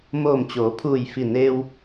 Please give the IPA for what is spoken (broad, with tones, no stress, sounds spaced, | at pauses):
m oː˧˩ m t͡ɕ oː˩˧ pʰ uː˧˩ j f i˧˩ n eː˧ w